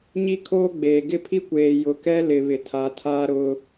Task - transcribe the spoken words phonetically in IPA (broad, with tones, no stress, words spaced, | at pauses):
ɲi˦kʰoː˦ɡ͡beː˨ ɡɪ˦pʰi˦kʷeː˨ jʊ˨kɛ˦ lɪ˨βɪ˨tʰa˨ tʰa˦ɾʊ˦